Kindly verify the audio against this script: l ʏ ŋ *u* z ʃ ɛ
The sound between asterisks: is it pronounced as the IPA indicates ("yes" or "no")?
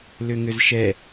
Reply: no